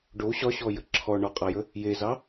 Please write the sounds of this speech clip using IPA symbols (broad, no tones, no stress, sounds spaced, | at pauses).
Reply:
ɖ o ɕ ɒ ɕ ɔ j ə ǁʰ ɔ ɳ ɒ qʼ a j ə | j e z ɑ